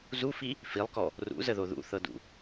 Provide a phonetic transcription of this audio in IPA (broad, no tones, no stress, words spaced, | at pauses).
zufi | filˠkɔ | rṵzəðo ðṵθɤdṵ